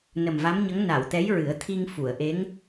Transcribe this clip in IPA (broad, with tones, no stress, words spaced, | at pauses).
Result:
nə˨˩mva˧˥mɲə˧˥ŋ na˨˩˨wt̪ɛ˧˥jɹɨ˨˩˦ə̯t̪ʰi˧ŋ fu˨˩˨ə̯ʔe˧˥ŋ